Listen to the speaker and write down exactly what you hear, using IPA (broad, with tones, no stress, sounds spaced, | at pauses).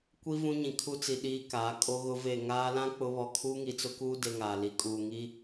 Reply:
kʷ i˦ v ũ˦ ɲ ĩ˨ kʰ u˦ t͡s i˨ ɗ iː˦ k aː˨˦ kʼ o˦ ɣ ʊ˦ v e˦˨ ŋ aː˦ l ã˦ k͡p ʊ˦ β ɔ˦ kʰ uː˦ ŋ i˨ t͡s ʊ˦ k uː˦ d e˦ ŋ aː˨ l i˨ kʼ uː˨ ŋ i˦